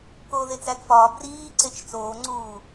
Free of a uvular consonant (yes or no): yes